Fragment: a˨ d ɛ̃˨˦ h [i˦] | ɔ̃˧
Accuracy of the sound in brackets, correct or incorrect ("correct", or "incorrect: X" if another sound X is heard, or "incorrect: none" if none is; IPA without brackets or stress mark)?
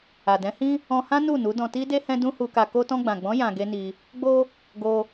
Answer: incorrect: ĩ˦